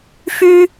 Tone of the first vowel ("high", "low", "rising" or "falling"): high